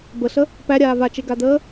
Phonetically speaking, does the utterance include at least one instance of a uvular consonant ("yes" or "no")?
no